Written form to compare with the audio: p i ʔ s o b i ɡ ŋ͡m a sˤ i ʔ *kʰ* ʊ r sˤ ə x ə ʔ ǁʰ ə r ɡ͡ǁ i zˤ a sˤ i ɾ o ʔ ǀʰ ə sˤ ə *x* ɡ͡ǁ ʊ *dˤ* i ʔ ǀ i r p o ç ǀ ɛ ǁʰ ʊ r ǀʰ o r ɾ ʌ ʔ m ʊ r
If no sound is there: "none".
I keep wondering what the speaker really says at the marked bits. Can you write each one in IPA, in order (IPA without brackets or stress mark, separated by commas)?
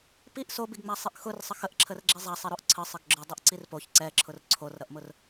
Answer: x, ɡ, dˤ